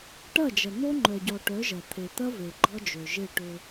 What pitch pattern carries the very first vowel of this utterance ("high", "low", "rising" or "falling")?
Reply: falling